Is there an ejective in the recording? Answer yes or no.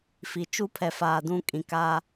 yes